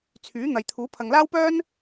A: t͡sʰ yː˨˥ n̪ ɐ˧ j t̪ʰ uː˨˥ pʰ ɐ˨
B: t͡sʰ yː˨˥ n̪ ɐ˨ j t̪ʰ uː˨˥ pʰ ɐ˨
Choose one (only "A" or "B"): B